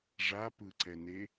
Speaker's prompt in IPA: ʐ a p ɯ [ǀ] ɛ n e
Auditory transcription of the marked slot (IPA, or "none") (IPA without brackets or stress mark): ǀ